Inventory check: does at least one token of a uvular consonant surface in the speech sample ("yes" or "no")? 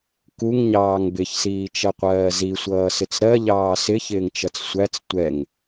yes